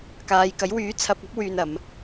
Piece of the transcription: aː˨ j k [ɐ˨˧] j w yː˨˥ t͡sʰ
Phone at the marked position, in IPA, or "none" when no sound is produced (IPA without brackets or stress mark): ɐ˨˥